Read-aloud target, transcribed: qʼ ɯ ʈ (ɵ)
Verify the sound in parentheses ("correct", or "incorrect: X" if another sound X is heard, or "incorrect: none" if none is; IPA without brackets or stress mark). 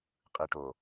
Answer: incorrect: o